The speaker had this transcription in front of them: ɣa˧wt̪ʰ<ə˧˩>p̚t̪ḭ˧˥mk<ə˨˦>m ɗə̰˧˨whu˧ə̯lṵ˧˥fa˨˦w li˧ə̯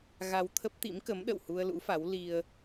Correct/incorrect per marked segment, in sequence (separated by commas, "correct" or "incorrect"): incorrect, correct